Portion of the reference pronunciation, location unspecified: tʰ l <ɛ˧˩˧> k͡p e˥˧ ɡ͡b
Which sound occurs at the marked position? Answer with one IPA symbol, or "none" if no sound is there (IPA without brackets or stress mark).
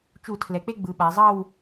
ɛ˩˧